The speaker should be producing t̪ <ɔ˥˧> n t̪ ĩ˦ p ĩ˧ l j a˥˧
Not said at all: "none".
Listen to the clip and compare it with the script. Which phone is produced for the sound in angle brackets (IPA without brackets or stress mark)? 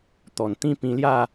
ɔ˨˩